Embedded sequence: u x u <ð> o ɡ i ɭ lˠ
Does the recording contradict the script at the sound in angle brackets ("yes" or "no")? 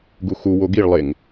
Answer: yes